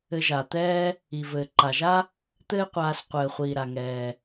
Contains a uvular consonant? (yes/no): yes